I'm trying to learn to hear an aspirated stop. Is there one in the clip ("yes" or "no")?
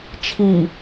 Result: yes